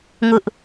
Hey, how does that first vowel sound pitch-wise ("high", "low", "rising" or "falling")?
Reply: high